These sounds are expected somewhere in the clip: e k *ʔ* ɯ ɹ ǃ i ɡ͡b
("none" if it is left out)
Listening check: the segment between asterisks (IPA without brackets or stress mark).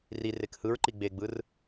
h